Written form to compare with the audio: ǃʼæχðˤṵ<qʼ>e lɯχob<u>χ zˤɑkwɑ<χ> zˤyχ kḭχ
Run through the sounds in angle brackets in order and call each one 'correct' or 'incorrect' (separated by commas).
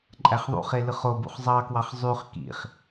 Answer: incorrect, incorrect, correct